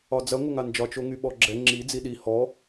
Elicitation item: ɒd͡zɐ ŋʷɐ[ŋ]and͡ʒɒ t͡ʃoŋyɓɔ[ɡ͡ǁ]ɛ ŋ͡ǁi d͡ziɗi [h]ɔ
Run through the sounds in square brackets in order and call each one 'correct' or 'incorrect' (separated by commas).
correct, correct, correct